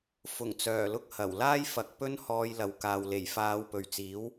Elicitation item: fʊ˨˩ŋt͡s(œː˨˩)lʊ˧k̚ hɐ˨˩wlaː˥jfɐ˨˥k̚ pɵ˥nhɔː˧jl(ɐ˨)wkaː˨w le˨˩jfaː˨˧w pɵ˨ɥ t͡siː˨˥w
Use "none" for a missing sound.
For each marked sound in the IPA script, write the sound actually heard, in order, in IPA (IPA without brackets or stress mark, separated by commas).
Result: œː˨˩, ɐ˨